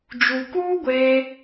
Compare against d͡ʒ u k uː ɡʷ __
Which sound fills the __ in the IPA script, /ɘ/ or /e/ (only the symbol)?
e